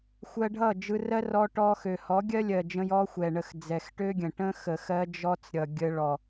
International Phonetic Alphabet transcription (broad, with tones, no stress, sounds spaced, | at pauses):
xʷ ɜ˧ ɖʱ ʌ˦˨ d͡ʒ ɯ˧ r ɜ˦ r ɔ˧ ʈ ɔ˧ x ø˨ h ɔ˨˦ ɡʲ ɜ˦ lʲ ɜ˨ d͡ʒ ə̃˧ j ɔ˦ xʷ ɛ˨ ɳ ə˧ x d͡z ɛ˨ x ʈ ø˦ ɡʲ ə̃˨ ʈ ə̃˦ x ə˨ x ɜ˧ d͡ʒ ɔ˧ t͡s ɾʲ ʌ˨ ɡʲ ə˧ ɭ ɔ˨